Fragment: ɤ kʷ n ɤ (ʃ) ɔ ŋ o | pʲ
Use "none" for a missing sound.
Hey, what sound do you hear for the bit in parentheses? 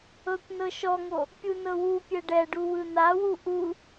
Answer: ʃ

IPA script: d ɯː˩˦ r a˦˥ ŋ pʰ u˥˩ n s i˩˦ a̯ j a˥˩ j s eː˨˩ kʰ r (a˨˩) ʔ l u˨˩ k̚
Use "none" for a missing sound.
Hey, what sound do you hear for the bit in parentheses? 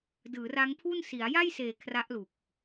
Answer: a˦˥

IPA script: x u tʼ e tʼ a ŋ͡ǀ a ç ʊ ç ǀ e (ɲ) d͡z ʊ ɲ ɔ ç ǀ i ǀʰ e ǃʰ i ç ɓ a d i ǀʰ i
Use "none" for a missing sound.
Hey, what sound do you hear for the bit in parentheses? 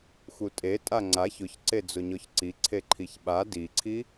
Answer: none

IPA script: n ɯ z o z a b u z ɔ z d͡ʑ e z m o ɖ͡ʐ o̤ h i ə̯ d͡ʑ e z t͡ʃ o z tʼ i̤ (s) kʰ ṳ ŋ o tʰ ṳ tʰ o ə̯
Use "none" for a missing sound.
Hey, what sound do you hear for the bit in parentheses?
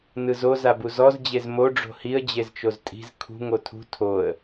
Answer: z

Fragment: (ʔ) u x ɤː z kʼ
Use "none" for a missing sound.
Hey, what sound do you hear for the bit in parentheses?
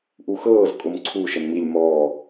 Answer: ʔ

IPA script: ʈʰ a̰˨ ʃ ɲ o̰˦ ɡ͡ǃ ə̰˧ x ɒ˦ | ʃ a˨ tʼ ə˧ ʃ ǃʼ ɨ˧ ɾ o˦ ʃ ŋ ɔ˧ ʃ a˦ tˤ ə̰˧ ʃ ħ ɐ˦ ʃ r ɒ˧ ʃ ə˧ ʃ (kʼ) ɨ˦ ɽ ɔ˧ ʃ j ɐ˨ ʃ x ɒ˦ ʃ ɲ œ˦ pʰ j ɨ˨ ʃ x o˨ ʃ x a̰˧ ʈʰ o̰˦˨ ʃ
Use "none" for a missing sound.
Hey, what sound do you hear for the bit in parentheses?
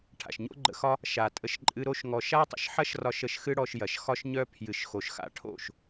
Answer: x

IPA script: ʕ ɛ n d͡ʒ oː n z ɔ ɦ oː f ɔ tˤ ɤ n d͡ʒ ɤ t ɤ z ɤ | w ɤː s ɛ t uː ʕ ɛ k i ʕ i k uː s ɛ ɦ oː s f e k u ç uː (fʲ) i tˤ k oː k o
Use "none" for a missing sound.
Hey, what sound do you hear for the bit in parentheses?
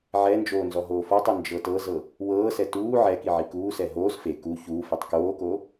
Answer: f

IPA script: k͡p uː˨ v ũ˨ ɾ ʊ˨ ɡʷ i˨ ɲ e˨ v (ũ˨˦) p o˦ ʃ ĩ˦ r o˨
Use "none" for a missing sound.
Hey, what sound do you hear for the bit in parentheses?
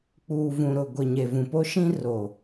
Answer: ũ˨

